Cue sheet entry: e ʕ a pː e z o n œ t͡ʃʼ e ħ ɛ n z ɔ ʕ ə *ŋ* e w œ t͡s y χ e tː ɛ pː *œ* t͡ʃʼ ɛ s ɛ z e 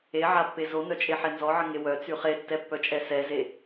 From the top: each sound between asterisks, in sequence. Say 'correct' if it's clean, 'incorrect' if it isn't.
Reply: correct, correct

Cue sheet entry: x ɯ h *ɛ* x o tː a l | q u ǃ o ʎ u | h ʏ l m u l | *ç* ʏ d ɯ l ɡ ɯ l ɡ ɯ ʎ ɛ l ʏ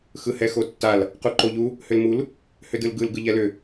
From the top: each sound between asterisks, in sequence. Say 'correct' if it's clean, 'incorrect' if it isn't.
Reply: correct, incorrect

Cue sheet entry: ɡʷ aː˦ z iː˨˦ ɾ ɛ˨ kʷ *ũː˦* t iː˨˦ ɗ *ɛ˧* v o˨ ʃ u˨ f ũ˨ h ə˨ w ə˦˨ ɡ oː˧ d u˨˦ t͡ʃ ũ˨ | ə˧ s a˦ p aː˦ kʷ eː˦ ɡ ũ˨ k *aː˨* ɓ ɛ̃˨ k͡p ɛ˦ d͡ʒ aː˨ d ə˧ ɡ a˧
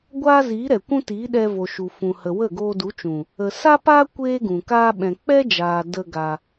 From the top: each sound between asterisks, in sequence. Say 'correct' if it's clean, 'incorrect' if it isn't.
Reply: incorrect, correct, incorrect

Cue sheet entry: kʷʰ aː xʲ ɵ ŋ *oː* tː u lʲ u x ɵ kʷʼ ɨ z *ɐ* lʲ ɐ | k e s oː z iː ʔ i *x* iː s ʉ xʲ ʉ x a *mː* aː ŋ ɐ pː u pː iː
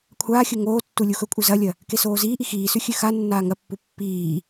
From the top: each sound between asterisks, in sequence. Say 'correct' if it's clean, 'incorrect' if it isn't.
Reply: correct, correct, correct, incorrect

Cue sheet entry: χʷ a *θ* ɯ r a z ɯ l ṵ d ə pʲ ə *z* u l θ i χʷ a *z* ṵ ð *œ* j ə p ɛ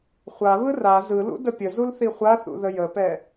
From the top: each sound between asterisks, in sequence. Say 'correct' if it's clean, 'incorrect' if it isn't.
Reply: incorrect, correct, incorrect, incorrect

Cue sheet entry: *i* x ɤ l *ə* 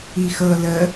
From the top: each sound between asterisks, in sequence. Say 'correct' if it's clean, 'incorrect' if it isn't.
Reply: correct, correct

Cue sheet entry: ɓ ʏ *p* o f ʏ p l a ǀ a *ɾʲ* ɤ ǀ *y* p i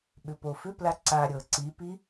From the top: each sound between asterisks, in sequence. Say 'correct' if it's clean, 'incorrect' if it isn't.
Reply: correct, correct, incorrect

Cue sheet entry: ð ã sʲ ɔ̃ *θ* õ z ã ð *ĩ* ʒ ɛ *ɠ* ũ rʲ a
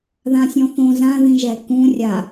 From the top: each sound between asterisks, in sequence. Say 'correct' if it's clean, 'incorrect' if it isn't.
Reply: correct, correct, incorrect

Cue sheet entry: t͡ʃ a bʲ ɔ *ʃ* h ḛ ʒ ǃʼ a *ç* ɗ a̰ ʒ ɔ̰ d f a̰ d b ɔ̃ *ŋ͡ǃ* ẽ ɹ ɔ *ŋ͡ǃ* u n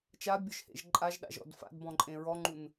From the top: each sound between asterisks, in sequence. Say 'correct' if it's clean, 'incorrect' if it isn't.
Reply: correct, incorrect, incorrect, correct

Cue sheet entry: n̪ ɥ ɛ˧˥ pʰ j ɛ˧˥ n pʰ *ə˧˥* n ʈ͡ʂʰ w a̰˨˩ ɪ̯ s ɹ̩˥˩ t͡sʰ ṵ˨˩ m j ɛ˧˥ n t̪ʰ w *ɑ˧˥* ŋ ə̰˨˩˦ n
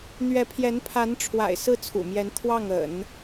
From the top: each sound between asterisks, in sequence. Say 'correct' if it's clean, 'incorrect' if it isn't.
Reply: incorrect, incorrect

